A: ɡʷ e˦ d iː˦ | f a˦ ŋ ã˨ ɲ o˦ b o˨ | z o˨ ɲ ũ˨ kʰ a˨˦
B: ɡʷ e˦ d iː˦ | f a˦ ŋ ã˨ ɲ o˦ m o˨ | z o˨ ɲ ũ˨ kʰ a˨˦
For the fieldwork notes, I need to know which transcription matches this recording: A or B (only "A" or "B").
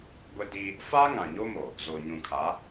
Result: B